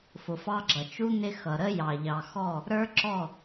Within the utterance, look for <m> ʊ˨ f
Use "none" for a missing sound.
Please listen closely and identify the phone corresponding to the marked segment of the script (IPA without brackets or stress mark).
f